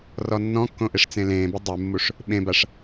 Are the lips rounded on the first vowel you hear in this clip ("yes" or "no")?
yes